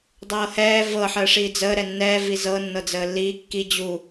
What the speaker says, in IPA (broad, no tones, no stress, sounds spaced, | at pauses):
dˤ ɤː h ɛː v ɤ ħ əː ʂ iː d͡z əː ɾ ɛ nː ɛ v i z ɤ nː ɤ d͡z əː lː iː kː i d͡ʑ u